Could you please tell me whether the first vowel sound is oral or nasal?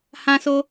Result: nasal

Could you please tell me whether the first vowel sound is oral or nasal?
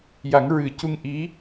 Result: oral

